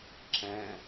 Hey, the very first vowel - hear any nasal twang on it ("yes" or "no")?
yes